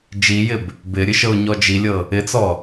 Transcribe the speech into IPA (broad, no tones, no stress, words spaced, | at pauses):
d͡ʒijɪb | bɪɾʲɨ ʃɤʊ̯ɲɔd͡ʒilʲɤ | ɪt͡sɔ